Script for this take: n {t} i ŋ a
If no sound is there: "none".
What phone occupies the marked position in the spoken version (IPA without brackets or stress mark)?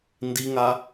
d